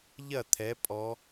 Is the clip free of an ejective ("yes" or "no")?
no